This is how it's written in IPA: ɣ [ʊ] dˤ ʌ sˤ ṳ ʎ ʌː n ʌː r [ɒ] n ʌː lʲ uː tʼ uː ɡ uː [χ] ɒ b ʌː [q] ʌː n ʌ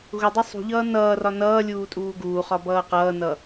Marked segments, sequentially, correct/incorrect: correct, correct, correct, correct

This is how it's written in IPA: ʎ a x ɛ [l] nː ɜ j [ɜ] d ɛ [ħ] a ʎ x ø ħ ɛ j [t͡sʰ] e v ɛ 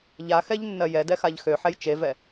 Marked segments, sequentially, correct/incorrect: incorrect: ʎ, incorrect: ɛ, incorrect: x, incorrect: t͡ʃ

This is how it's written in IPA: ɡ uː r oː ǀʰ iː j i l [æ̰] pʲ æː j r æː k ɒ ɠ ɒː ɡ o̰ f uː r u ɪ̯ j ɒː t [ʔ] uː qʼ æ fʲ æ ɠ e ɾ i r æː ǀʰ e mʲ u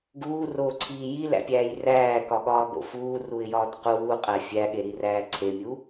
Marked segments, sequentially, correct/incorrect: correct, incorrect: q

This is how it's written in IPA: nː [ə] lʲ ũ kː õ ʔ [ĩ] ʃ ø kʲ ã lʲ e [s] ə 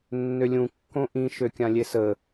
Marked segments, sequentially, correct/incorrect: incorrect: ø, correct, correct

